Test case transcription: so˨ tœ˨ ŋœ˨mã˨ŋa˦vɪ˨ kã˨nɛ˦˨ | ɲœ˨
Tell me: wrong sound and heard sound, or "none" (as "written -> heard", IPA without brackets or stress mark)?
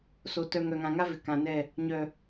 m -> ŋ